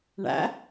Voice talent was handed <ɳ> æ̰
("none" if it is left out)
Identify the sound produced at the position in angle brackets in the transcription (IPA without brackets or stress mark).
ɳ